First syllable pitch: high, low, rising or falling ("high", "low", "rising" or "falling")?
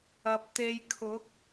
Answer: low